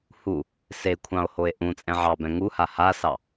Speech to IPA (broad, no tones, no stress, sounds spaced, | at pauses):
h u | s e kʷʰ ɑ̃ o̯ h o e̯ ʔ ũ t͡sʼ ɛ̃ ʕ ɑ b ɛ̃ ŋ u h a h a s ɑ